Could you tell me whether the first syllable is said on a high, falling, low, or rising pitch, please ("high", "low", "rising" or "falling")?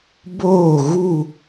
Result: falling